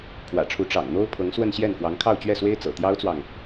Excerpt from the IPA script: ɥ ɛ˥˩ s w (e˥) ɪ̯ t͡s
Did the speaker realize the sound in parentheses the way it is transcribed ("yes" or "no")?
yes